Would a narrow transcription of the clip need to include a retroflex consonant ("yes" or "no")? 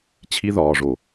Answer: yes